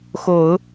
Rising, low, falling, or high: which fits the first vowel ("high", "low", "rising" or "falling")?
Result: low